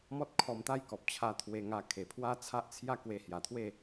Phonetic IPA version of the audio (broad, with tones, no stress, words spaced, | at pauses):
mɔ˦t̚ kʰɔ˧mt̪a˥˧jkɔ˨p̚t͡ɕʰa˧ t̪ʰwe˧ŋa˧ kʰe˨˩pʰwa˦t͡sʰa˦ʔt͡sʰja˥˧ kwe˧hja˨˩t̪ʰwe˥˧